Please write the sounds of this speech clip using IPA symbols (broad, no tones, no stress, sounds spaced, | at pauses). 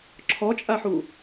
ǁʰ ɔ t͡ʃʼ a ħ u